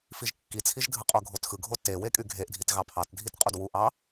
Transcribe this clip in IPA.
f i ʒ kː i t͡sʰ i ʒ dʱ ɯ qʼ o ɡʱ o t x ɯ ɡʱ o t e w e kʼ y ɡʱ e ʔ dʱ i t ɣ ɑ pʰ ɑ t dʱ i t qʼ u d w u ʔ ɑ

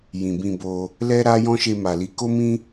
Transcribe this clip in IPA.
j ĩ˨ b ĩ˧ b o˧ | l ɛ˦ ɾ a˦ j ɔ̃˦ ʃ e˧ m a˨ l i˨˦ k o˦ m ĩ˦

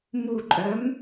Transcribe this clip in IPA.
m u ǃʼ œ m

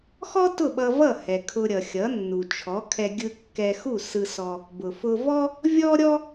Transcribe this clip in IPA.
x ɔ˥ t ʊ˥˩ ɓ ʌ˧ v ʌ˥˩ h ɛ˩ kʰ ʊ˧ ɾʲ ʌ˩ xʲ ʌ˩˥ nː u˩ t͡ʃʰ ɔ˩˥ kʰ ɛ˧ ɡʲ ɯ˧ kː ɛ˧ x u˥˩ s ɯ˧ s ɔ˧ | b ʊ˩ f ʊ˧ v ɔ˥ | vʲ ɔ˥ ɾʲ ɔ˥

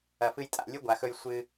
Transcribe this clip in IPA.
ɐ˧ f ɨ˦ j tʼ a̰˧ lʲ ɨ˦ ɡʷ a˨ x ɵ˧ j sʷ ɨ˧

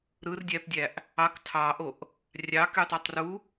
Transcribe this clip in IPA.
ɾ ɯ r dʲ æ p dʲ æ ʔ | ɑ k tʰ ɑ ʔ o ʔ | rʲ ɑ k y tˤ ɑ tˤ r u

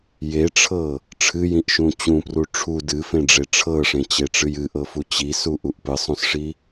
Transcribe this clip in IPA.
j e ʈ͡ʂʰ ɤ | ʈ͡ʂʰ ɨ j ĩ ʔ ʃ ũ t͡ɕ ũ p r u ʈ͡ʂʰ u d ɨ f ẽ ɖ͡ʐ e ʈ͡ʂʰ ɤ ʂ ẽ t͡ɕ e ʈ͡ʂ ɨ j ɨ ʔ ɤ f u t͡ɕ i s u ʔ u ʔ p ɨ sˤ ũ s ʂ i

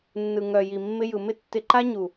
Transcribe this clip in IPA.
nː ɯ˨ ŋ œ˨ j i˨ mː ɪ˧ j ɯ˨ m ɪ˦ tː ɪ˧ ǃ a˦ ɲ u˨

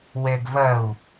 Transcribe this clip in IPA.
w ɛ ɡ v ɐ u̯

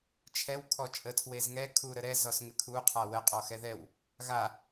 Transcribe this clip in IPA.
t͡ʃʰ ɛ w kʰ ɔ t͡ʃʼ ə tʰ w e z ŋ ɛ kʰ u ɾ ə ɾ ɛ z ɔ s ŋ ɘ kʰ u qʰ a w ə qʼ ɔ x ɛ ð ɛ w | ɣ a

